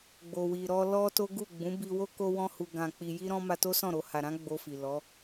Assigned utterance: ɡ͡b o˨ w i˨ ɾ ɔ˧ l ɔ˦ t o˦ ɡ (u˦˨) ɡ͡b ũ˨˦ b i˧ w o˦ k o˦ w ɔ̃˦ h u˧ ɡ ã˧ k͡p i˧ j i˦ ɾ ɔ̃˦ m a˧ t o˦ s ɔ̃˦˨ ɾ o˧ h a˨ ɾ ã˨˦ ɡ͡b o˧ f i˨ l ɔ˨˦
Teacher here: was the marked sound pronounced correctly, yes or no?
yes